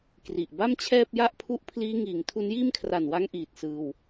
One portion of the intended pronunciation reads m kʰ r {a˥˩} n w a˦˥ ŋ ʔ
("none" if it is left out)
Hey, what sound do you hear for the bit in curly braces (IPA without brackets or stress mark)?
a˨˩